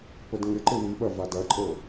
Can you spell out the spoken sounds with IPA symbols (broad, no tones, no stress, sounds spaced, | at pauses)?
p ə d ŋ ɪ ǃ ɪ w i ɓ ɐ v a d ɐ ǃʼ ɤ